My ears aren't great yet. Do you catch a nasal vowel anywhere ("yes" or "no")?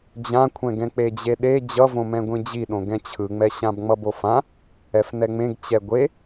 yes